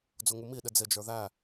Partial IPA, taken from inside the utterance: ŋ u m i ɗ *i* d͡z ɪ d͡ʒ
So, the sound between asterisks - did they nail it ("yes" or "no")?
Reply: no